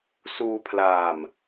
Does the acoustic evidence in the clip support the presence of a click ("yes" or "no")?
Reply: no